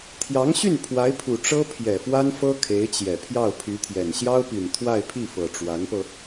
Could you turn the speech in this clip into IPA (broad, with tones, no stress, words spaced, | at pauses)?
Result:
t̪ʰjɑ˧˥ŋɕy˥˩n pʰwa˧˥ɪ̯pʰu˨˩ ʈ͡ʂɤ˥pʰjɛ˨˩fwa˥nfɤ˥ kʰe˧˥ɪ̯t͡ɕjɛ˨˩ pʰjɑ˥˩ʊ̯pʰy˧˥t̪ʰjɛ˨˩n ɕjɑ˥ʊ̯pi˨˩n t̪ʰwa˥˧ɪ̯pʰi˥˩fɤ˨˩ ʈ͡ʂwa˧˥npɤ˧